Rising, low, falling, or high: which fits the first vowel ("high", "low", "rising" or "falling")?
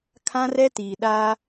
high